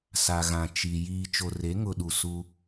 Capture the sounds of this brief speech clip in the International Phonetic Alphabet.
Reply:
s a˨ ɣ ã˨ t͡ʃ i˨ j iː˨ t͡ʃ o˨ r e˨˦ ŋ ʊ˨ ɗ u˨ s u˦

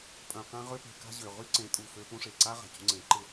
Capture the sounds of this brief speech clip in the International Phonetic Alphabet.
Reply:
pʼ œ̃˨ q ã˧ ʁ ø˧ p e̤˨ k a̤˧ ʑ ø˨ ʁ y˦ ǀ ẽ˨˦ tʼ u˨ f ø˦ p ũ˦ ʂ e˨ ǀ a˦ ʁ a̤˨ c ṳ˧ ŋ͡ǀ ẽ˨˦ ǃ ɪ˧

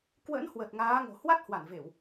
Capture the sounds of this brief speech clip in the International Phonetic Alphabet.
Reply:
k w ə̰˧˥ n h w ə˨˩ t̚ ŋ aː˨˦ ŋ o̤˨˩ h w a˦˥ t̚ h w a˧˩ n v e˧˩˨ w

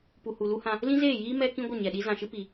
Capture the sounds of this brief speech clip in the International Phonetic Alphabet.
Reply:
p u˨ h u˨ l u˦ h ã˧ | l ĩ˦ z eː˦˨ j iː˦ m ɛ˦ k ĩ˦ ɡʷ ə˦˨ ɲ ɛ˨ ɗ i˦ z ã˨ ʃ ɨ˦ p i˨

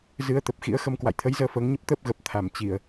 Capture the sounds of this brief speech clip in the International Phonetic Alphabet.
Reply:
z ɨ˨˦ ə̯ t̪ ə˨˩ p̚ x ḭ˧˥ ə̯ x ə˧ m k w a̰˧˨ j t̪ʰ ə˨˦ j z əː˧ f əː˨˦ ŋ ɲ ə˦˥ p̚ t̪ əː˦˥ p̚ ɣ ə˨˩ p̚ t̪ʰ a˧˩ m t͡ɕ i˧˩˨ ə̯

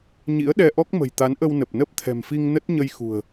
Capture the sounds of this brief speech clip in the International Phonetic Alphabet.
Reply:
ɲ ḭ˧˥ ə̯ ɗ ɛ˧ ʔ ɔ˦˥ k̚ m ə̤˨˩ j t̪ a˨˦ n ʔ ə˧ w n ə˨˩ p̚ n ə˦˥ p̚ t̪ʰ ɛ̤˨˩ m f i˧ ŋ n ə˦˥ t̚ ɲ ə˧ j x ṳ˨˩ ə̯

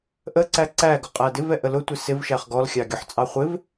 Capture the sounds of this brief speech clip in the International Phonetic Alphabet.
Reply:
ʔ ə ǀ æ ǀ æ ɡ ʊ qʼ æ d ɪ v ɛ ʔ ə l ʊ tʷ ɪ s ɪ v ʃ æ χ ɡ ɔ l xʲ ɑ ɡʲ ʊ ħ t͡sʼ ɑ χʷ ɪ v

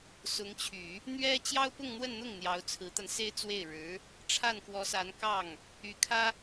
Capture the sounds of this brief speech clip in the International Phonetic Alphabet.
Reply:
s ʊ˧˥ ŋ t͡ɕʰ y˨˩˦ | n̪ ɥ ɛ˥ t͡ɕ j ɑ˥ ʊ̯ p ʊ˥˧ ŋ n̪ w ə˥˧ n n̪ ʊ˥˩ ŋ n̪ j ɑ˧˥ ʊ̯ t͡sʰ ɹ̩˧˥ t̪ a˧ n s e˥ ɪ̯ t͡s w e˥˩ ɪ̯ ɻ ɻ̩˧˥ | ʈ͡ʂʰ a˥˩ n k w ɔ˧˥ s a˧˥ n k ɑ˥˩ ŋ | y˧˥ kʰ ä˥

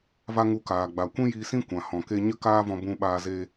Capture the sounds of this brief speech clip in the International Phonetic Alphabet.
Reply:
v a˦ ŋ u˧ k aː˨ ɡ͡b a˨ kʷ ĩ˦ j iː˧ s ĩ˦ kʷ ã˨ h ɔ̃˨ k e˧ ɲ ə˦ k aː˦ v ɔ̃˧ b ũ˧ ɓ aː˧ z eː˧

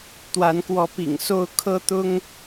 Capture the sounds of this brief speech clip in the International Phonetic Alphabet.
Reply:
t̪ w a˨˦ n k w ɔ˨˦ p ḭ˨˩ ŋ s o˥˨ ʊ̯ kʰ ɤ˦ t̪ ʊ˦ ŋ

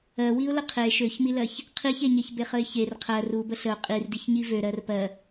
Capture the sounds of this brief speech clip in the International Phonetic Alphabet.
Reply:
ɜ w i ʊ̯ l ə qʰ e ʃ ø ç m i l ɜ ç | qʰ i ç e ɲ e ç b e χ ə ɪ̯ ç e r qʰ ɜ r u b ə ɬ ə ʊ̯ qʼ i r d i ç ɲ i v ø ɾ ɜ r p ɜ

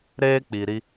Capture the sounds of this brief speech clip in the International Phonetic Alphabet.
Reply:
ɾ eː˦ k͡p i˨ ɾ i˦

